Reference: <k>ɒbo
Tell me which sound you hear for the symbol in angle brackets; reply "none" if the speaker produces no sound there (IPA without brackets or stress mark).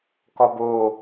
k